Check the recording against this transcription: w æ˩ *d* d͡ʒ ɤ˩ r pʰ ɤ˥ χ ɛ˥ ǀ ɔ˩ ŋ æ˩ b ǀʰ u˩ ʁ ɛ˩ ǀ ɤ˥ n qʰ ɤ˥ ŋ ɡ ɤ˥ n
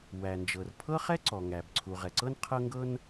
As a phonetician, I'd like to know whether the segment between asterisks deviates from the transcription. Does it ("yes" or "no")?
yes